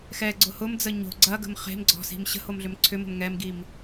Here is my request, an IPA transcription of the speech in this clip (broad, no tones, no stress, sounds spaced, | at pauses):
x ɛ ɡ͡ǀ ʊ h ʊ m d͡z ə ɲ o̤ ɡ͡ǀ ɐ ɡ ə̤ m χ e̤ m ɡ͡ǀ ɔ̤ s i̤ m ɕ ə̤ h o m ɮ ʏ m ǀʰ ʏ m ə̤ m ŋ ɛ m ɡ i m